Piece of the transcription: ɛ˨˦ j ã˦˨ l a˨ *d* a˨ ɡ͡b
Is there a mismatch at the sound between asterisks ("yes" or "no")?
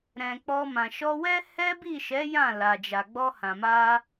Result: yes